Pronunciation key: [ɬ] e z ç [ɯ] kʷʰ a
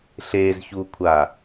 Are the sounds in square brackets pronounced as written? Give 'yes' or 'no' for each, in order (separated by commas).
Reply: yes, no